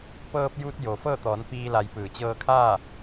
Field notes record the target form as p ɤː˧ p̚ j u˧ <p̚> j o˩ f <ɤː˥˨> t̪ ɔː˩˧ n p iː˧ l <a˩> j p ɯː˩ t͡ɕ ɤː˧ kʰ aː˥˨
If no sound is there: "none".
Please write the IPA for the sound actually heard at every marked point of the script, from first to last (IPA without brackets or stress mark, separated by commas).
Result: t̚, ɤː˥˨, a˩˧